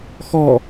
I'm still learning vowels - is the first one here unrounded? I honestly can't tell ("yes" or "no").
no